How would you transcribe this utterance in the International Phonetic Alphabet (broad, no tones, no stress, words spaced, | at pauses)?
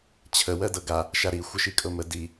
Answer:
t͡ɕʰə wɜdɤɡa | ʃaɾi xʷəʃikʼɤmə di